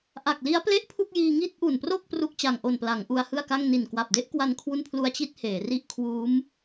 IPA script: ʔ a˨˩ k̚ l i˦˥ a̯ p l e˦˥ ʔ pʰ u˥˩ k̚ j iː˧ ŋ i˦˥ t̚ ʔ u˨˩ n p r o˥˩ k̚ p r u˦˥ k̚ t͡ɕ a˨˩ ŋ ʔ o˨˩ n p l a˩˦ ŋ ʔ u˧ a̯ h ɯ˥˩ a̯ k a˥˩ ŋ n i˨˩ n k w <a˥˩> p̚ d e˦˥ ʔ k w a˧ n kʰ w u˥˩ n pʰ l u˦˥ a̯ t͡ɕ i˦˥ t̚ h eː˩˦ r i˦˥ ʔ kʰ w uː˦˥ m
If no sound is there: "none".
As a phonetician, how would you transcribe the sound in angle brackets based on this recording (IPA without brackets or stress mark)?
a˨˩